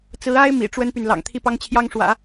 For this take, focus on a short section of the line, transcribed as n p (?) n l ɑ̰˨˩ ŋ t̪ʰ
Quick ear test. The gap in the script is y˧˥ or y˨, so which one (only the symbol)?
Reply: y˨